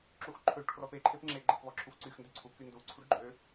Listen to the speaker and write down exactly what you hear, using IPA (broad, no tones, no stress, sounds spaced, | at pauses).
ǁ u x ǃʰ ø ʈ k r ɔ p e ǃʰ e p ŋ͡ǁ e ɡ͡ǃ e p β ɔ ǁʰ u f ǀ y x n d ø ǀʰ u k y n d u ǀʰ u ɖ ɡ͡ǃ ø